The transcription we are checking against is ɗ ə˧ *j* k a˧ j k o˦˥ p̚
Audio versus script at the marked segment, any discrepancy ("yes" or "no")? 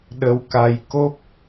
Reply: yes